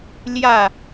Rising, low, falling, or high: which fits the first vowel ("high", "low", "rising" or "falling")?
falling